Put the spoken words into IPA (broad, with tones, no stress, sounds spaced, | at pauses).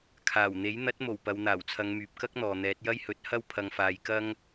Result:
kʰ aː˨˩ w n̪ e˨˥ j n̪ ɐ˨˥ t̚ m o˨˩ w p ɐ˨ w n̪ aː˨˩ w t͡sʰ ɐ˨˧ ŋ m yː˨ p̚ k ɐ˥ k̚ n̪ ɔː˨ n̪ ɛː˨˥ t̚ j ɐ˥ j h ɵ˨˥ t̚ h ɐ˧ w pʰ ɐ˨ ŋ f aː˨ j k ɐ˥ ŋ